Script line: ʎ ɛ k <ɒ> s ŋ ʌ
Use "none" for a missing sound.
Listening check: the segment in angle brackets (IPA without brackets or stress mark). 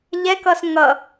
ʌ